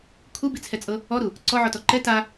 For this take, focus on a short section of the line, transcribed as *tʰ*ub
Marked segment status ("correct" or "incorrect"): incorrect